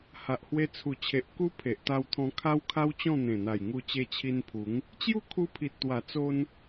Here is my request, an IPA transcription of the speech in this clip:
h a˨ ʔ h w e˧ t͡sʰ u˨˩ t͡ɕʰ e˨ ʔ k u˦ pʰ e˨ ʔ t̪ a˧ w t̪ʰ ɔ̃˧ kʰ a˦ w kʰ a˦ w t͡ɕ ɔ̃˥˧ n̪ ẽ˨˩ n̪ a˨˩ j ŋ u˧ t͡ɕ e˧ t͡ɕʰ i˧ n pʰ u˨˦ ŋ | t͡ɕ j u˥˧ kʰ u˧ pʰ i˨ t̚ t̪ w a˨˩ t͡s o˦ n

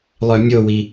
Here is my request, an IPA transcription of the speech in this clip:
lˠ œ mʲ o w i

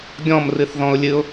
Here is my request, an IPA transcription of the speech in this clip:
ɡʲ ɔ̃ m r ɨ θ ð ɔ̃ ʊ̯ lʲ ɨ ʊ̯

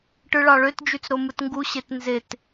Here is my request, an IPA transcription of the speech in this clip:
ʈ ɯ ɭ ɑ ɭ ø t d͡ʒ y t͡s ɾ o m ɯ t ŋ ɡ u ɕ e t n z e t

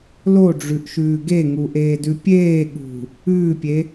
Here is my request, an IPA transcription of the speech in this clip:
l o ɖ͡ʐ ʉ ʔ ʃ ʉː ɡ e ŋ u ʔ eː d ʉ pʲ eː ɠ ṳ | ʉː pʲ e

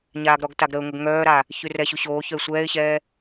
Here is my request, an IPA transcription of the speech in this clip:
ɲ aː ɡ ɾ ɔ ɡ t a ɡ ɾ ə ʊ̯ ŋ ə ɡ ŋ œː ɾ a | ç y r ɛ ɕ u ɕ oː ç œ ɪ̯ sʷ ɛː ɪ̯ ɕ ɛː

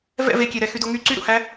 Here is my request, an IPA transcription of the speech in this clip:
v ɛ̰ v e kʲ e ɾ ɛ x y d o ŋ y ǀ y ɾ ṵ h æ

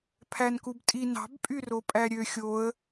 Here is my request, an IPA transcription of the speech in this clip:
pʰ æ n k u b tʼ i n ɑ̤ b pʼ y r o pʼ æ ɾʲ ø xʲ o ə̯

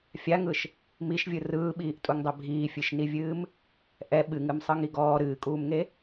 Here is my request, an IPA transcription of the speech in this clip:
fʲ a ŋ ɯ ʃ | m i ʃ vʲ ɯ r ɯː ɓ iː ʔ tʼ u ŋ dˤ ɛ bʱ iː fʲ ɨ ʃ n i vʲ ɨː m | ʔ ɛ ɓ ɨ ŋ ɨ m sˤ ɯ ŋ i ɡ ɔː ɾ ɨː kʼ uː m ŋ e

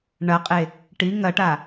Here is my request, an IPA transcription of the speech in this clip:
ɳ ɐ qʼ e | ʈ i ŋ ɐ ʈ a

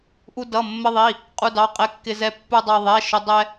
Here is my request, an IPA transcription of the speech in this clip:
ʔ u˧ d ʌ˩˧˩ mː ə˧ ðˤ i˩˧˩ | qʼ u˧ d ɑ˩˧˩ qʼ ɛ˧ kː ɪ˧ z ɛ˧ pː u˧ dˤ ɑ˧ ðˤ ɛ˩˧˩ ʃ ʊ˧ dˤ ɛ˧

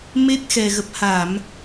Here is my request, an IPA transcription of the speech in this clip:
m e˦˥ t̚ x ɛ˨˩ ɣ ə˨˩ p̚ h a˧˩˨ m

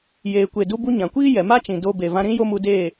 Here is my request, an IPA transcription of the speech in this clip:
j eː˨ kʷ e˨ d u˧ b u˧ ɲ ã˨ kʷ iː˦ j ɛ˨ m a˦ t͡ʃ ĩ˨ d o˧ b e˨ v ã˧ ɾ ĩ˦ j o˦ m u˧ d eː˦˨

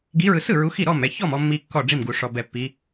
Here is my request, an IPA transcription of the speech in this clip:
ɡ i˨˦ ɹ ɯ˨ s ɯ˥˩ ɹ u˨˦ x i˥˩ ɾ ɔ˥˩ m ɛ˥˩ ç ɔ˥˩ m ɔ˨ mː i˨ kː ɔ˥˩ ɖ͡ʐ i˥˩ m ɡ u˨ ʂ ɔ˨ b ɛ˨ pː i˨˦

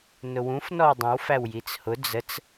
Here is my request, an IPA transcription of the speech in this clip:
n ʊ w ũ f n ɔ w dˤ ə̃ w f æ w j i t͡s h ʊ d͡z ə t͡s

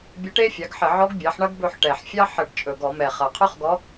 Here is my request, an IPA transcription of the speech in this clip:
bʲ ə˧˥ ʈ e˥ fʲ ɑ˩˥ ɡ ħ ə˧˩˧ ʕ ɔ˧˥ ɡ bʲ ɑ˩˥ ħ ɳ ɐ˥ ɡ b ɵ˦˨ ħ ʈ ɛ˨˩ ħ fʲ ɑ˥ ħ ə˧˩˧ ʈ t͡ʃʼ ɵ˨˩ ɡ ɔ˧˩˧ m ɛ˨˩ χ ɐ˨˩ qʰ ɵ˥ χ ɡ ɔ˧˥

